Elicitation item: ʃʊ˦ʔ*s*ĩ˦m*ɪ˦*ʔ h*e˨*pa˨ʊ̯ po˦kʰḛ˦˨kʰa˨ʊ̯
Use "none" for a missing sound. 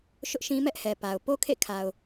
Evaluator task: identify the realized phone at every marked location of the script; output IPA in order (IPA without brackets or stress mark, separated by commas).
ʃ, ɛ˦, ɛ˨